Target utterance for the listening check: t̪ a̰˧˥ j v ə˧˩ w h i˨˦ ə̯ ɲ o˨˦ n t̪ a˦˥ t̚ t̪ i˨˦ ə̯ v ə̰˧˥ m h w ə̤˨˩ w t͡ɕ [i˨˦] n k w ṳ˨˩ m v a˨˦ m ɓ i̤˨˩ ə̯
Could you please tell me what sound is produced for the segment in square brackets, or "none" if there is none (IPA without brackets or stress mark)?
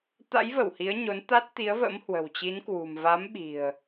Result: i˨˦